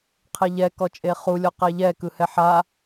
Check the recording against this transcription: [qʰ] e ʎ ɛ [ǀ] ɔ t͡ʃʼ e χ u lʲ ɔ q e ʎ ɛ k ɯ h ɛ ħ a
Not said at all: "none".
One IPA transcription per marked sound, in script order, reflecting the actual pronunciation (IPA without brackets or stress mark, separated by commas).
qʰ, k